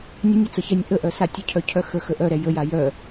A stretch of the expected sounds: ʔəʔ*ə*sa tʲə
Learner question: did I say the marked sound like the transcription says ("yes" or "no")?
no